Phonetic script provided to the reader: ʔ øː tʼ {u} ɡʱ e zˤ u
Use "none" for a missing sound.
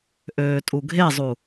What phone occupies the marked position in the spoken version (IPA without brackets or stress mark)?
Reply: u